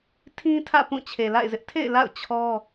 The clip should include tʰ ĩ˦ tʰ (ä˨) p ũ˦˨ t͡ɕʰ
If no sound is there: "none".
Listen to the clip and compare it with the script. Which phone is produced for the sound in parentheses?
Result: ä̰˦˨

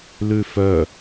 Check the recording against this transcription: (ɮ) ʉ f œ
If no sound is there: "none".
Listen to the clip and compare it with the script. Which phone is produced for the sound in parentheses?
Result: l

